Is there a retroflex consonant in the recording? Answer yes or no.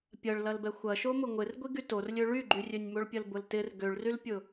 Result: yes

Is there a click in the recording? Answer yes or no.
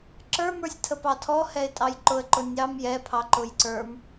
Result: yes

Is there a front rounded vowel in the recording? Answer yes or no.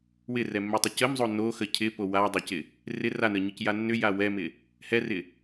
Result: yes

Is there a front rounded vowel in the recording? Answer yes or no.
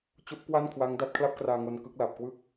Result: no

